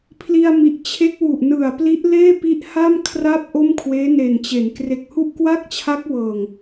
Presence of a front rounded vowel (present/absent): absent